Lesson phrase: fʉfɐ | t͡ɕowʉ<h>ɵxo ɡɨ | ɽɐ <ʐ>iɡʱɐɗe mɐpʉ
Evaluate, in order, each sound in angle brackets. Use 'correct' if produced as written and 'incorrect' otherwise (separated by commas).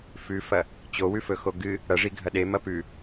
incorrect, correct